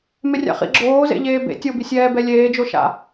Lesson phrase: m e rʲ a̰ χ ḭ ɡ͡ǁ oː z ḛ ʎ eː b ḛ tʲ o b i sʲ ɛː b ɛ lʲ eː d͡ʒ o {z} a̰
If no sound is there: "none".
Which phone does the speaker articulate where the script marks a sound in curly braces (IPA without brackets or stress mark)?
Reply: ʃ